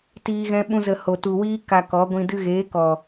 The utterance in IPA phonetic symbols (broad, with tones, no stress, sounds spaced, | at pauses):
t iː˦ ɣ ɛ̃˦ ɓ ũ˦ z ə˧ h o˨ t u˨ w iː˦ k a˧ k ɔ˨˦ ɡʷ ĩ˧ d ɨ˧ ɣ eː˨˦ k ɔ˨